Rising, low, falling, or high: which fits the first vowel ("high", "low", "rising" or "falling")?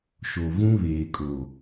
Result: low